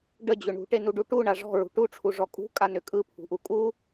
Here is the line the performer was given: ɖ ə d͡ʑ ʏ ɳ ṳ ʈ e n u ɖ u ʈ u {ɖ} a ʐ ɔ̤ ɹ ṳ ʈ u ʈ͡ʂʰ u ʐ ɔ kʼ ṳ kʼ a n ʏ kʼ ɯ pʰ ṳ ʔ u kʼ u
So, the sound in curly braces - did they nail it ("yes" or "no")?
no